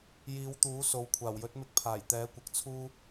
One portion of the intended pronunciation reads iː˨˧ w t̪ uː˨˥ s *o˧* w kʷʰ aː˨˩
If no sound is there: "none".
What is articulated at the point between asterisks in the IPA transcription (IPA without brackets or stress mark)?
o˨